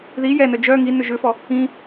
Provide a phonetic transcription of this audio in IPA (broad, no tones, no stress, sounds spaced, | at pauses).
ð i j ɛ n œ d͡ʒ œ ŋ i n ʏ ʒ ʏ f ɔ | ĩ